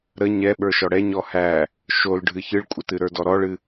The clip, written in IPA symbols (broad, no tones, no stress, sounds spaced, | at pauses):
ɾ ə ɲ ɛ ɓ ə˞ ʃ ɔ ɽ ɛ ɲ ɔ h æ | ʃ o l ɖʱ ɨ ç ɨ ɭ kʷʼ ə t ɨ ɾ ə˞ d ɔ ɾ ɔ ɭ ɨ